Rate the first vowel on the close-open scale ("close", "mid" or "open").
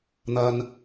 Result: open